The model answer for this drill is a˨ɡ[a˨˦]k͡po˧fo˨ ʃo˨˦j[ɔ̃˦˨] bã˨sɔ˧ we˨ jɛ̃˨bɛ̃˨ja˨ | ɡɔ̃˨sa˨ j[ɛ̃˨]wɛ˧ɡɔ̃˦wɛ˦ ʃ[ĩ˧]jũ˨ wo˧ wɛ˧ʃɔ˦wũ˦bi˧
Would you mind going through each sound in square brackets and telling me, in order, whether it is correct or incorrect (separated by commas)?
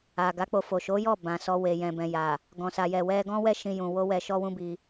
correct, incorrect, incorrect, correct